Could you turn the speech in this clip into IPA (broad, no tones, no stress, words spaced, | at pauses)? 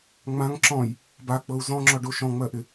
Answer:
ŋ͡mãŋ ǁɔ̃j | bak͡pɤu̯ zɔ̃ŋ͡ǁɔɖo ʃɔ̃ŋ͡mɜʔɪ